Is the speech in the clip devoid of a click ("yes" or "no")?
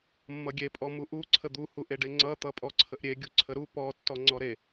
no